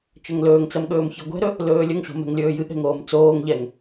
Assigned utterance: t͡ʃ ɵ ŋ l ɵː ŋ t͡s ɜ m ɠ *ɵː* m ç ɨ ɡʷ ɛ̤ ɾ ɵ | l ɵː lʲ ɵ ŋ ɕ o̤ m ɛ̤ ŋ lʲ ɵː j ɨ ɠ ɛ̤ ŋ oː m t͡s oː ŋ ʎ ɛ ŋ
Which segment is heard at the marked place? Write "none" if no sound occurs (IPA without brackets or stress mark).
ɵː